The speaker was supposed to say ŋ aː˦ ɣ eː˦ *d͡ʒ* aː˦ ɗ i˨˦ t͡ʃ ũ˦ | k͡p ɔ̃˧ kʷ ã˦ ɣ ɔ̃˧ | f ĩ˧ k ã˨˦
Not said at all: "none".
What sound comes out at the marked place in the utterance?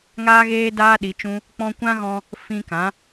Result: d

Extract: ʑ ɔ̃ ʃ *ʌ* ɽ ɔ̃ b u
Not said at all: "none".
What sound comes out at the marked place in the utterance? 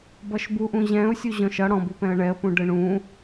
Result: ʌ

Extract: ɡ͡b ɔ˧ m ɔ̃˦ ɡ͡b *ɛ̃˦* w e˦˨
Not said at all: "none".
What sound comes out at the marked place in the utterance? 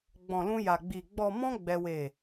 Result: ɛ˦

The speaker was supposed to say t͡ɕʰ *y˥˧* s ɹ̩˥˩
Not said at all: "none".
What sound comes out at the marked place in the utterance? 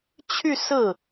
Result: y˥˧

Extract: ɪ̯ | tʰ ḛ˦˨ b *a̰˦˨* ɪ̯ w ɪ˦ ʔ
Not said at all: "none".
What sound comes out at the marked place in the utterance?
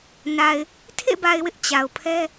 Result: a˨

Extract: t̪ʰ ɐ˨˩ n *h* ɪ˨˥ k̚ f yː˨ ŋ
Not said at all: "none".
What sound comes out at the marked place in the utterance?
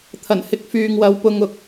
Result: h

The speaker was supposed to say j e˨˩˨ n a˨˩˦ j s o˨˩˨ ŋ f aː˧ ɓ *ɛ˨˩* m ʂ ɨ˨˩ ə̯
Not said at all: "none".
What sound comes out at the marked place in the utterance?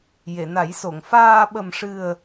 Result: ə˨˩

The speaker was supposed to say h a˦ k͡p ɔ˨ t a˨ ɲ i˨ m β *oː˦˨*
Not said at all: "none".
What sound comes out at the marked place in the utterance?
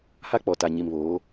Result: oː˨˦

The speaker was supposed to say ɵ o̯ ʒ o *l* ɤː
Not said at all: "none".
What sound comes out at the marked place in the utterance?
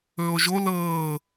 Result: l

